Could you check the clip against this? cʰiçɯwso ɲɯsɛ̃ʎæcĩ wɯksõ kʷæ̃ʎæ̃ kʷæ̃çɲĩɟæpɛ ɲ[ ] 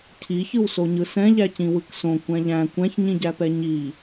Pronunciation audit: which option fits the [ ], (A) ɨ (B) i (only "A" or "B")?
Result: B